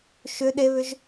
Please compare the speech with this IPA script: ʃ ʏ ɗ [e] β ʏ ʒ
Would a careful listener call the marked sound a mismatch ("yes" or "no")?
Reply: no